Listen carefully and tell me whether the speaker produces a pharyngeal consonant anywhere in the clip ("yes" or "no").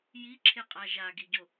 no